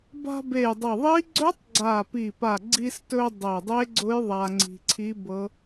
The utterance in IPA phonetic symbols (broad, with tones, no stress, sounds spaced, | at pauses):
b a̤˧ b e˨˩ j dˤ ɤ˨˩ ðˤ iː˦˥ ɡ͡ǀ ɵ˦˥ tˤ ɡ͡ǀ aː˨˩ p i˨˩ p a˨˩ ɡ͡ǀ i˧ s t ɵ˧ dˤ e˨˩ dˤ e˦˥ ɡ͡ǀ ʊ˦˥ j ðˤ a˧ ŋ͡ǀ i̤˧ ǀʰ i˦˥ b ɤ˦˥